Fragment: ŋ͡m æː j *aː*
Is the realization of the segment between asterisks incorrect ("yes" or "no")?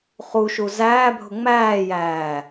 yes